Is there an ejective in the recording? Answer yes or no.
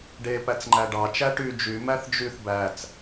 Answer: no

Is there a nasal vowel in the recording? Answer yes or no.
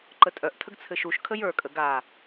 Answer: no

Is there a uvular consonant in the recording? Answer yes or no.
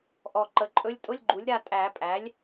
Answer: no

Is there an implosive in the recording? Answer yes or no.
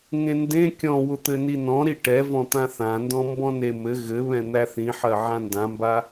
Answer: no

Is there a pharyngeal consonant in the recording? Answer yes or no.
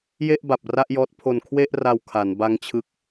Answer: no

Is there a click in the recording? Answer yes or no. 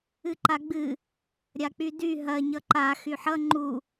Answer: yes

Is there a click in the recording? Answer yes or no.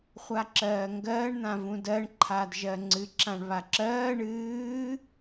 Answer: yes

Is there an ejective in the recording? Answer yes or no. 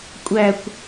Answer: yes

